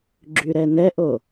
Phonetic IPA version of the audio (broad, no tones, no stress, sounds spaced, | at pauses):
ɡ͡ǁ y ɾ ɛ n ɛ ʔ o